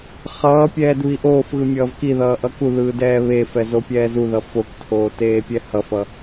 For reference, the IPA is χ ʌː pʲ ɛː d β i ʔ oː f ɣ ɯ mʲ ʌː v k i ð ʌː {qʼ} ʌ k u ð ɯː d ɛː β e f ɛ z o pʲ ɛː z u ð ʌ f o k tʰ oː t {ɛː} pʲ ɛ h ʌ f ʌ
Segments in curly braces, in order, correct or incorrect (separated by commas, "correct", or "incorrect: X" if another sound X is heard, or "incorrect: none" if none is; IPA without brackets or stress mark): incorrect: ʔ, incorrect: eː